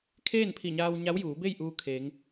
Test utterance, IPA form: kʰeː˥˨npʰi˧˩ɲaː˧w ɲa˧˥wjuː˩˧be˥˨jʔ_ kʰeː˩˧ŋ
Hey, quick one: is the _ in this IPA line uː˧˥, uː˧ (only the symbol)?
uː˧